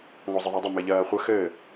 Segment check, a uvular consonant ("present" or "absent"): present